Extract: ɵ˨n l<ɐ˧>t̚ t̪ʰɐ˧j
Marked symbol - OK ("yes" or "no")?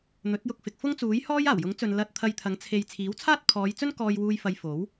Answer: yes